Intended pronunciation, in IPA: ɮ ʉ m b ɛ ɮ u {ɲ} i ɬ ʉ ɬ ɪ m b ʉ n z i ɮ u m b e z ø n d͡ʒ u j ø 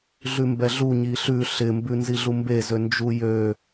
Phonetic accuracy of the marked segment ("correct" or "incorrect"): correct